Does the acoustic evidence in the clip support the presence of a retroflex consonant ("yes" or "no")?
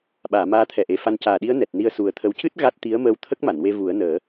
no